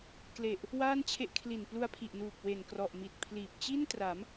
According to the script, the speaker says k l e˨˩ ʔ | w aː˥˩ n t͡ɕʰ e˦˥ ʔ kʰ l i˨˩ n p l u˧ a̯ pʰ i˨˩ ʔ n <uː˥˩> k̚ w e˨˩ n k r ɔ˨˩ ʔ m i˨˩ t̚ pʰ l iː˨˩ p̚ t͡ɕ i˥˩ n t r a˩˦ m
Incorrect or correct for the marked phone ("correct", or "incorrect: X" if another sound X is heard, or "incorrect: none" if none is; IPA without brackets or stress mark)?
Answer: incorrect: uː˨˩